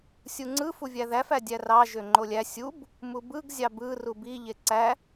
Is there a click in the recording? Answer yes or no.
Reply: yes